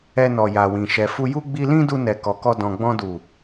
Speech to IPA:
ɛ˧ n ɔ˨ j a˨ w ĩ˨ ʃ ɛ˨ f u˧ j u˦ ɡ͡b i˧ l ĩ˦ d u˧ n ɛ˨ k ɔ˨ k ɔ˧ d ɔ̃˨ ɡ͡b ɔ̃˧ d u˨

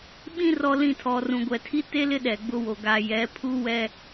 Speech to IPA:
ɓ ĩ˦ r ɔ˨ l ĩ˨ tʰ ɔ˨ r ũ˨ ɡʷ ɛ˨ tʰ i˦ t e˦ l ɪ˦ ɗ ɛ˨ ɡ͡b ʊ˦ w o˨ ɡ a˨ j ɛ˨˦ pʰ u˦ w ɛ˦

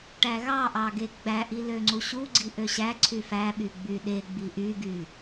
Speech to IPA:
ʈ æ ɣ ɑ ʔ ɑ ɡ e ɡ͡b æ ʔ i l ø ŋ͡ǀ u ɕ u ɡ͡ǀ i ʔ ø ɕ æ ǀʰ y f æ ɓ y ɡ͡b y ɗ e ɡ͡b i ʔ y ɡ y

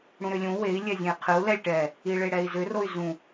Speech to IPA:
ɽ ũ ɾ ʏ lʲ ũ w e i̯ lʲ ɛ zʲ ẽ i̯ qʰ ɨ u̯ l ɛ lʲ ʈ ɛ | i ɭ e ɽ ɛ i̯ z ʏ r o y̯ z ũ

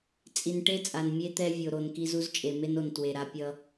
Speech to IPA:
t͡sʼ i˨ n ʈ e˦ t͡sʼ a˨ n mʲ e˦ t̪ ɛ˦ vʲ o˨ ɾ o˨ n k i˦ z u˦ z t͡ʃʼ e˨ m e˦ n o˨ n t w e˨ ɾ a˦ pʲ ʌ˦

